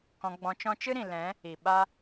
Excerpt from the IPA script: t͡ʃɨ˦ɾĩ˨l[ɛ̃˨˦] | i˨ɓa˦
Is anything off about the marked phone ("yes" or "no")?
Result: no